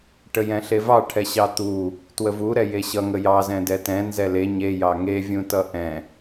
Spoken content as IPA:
ʈ ə j ɛ̃ ɬ e v ɑ ʈʰ ɛ ɕ ɑ t̪ u | t w ə v u ɾ ɛ j e ɕ ʌ ŋ ə j ɑ z ɛ̃ d ɛ t ɛ̃ n z ɛ l e ɲ e j ɑ ŋ e vʲ ũ t ʌ ʔ ɛ̃

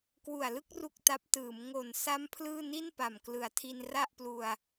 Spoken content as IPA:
k w u˨˩ a̯ l ɯ˥˩ k̚ r u˥˩ k̚ t a˦˥ p̚ t ɯː˩˦ m ŋ o˨˩ n s a˦˥ m pʰ l ɯː˥˩ n i˥˩ n p a˨˩ m k l ɯ˩˦ a̯ tʰ i˧ n r a˥˩ ʔ p l u˧ a̯

